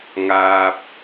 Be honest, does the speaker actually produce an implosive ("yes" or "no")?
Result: no